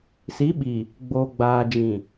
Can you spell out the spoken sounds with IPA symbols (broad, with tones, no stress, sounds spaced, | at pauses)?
s i˨˦ ɓ i˨ | ɡ͡b oː˨ ɡ͡b aː˨ d͡ʒ ĩ˨